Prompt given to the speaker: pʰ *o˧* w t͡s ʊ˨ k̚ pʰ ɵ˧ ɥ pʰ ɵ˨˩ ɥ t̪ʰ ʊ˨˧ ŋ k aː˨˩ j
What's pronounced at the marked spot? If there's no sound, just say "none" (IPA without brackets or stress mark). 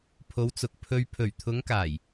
o˨˧